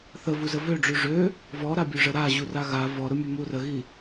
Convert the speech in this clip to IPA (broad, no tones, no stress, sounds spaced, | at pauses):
θ ə v u z ə v ø ɖ͡ʐ ʉ ʐ ø | v ɔ ɾ a bʲ ɵ ʐ ə ɾ a ʑ u r a ɣ a v ɔ ɾ ʊ mʲ ɵ m u r ə ɣ i